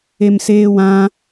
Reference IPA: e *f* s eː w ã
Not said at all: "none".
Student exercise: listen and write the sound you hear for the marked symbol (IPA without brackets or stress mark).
m